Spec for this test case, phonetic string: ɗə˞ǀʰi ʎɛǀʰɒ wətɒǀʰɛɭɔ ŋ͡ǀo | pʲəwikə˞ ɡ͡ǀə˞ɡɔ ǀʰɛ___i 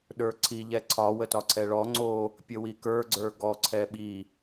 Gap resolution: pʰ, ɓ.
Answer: ɓ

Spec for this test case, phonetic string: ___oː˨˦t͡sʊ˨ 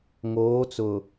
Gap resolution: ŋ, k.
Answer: ŋ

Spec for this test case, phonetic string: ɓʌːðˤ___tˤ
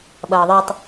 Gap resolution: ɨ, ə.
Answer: ɨ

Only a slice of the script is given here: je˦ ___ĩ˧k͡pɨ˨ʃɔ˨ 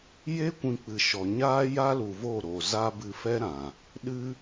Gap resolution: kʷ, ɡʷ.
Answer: kʷ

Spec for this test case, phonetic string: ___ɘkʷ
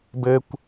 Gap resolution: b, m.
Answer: b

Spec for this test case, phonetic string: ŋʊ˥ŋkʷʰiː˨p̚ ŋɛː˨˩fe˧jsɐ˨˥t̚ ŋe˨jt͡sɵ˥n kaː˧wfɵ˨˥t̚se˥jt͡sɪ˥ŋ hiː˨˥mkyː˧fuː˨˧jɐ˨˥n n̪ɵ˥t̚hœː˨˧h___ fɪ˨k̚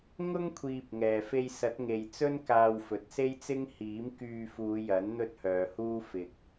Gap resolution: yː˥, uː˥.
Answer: uː˥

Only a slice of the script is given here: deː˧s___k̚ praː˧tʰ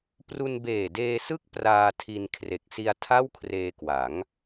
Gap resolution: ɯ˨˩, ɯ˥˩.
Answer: ɯ˥˩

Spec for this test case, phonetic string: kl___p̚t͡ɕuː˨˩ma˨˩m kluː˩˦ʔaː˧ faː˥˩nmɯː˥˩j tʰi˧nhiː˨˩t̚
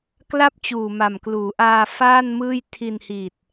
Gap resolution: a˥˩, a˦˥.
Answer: a˥˩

